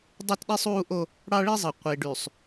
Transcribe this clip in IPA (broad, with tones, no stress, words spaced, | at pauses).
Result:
dˤo˦tɗi˦sˤ uː˦ʔo˦ | ɽɑ˦ɭi˦zˤɯ˨ qʷi˨ɖy˨sˤ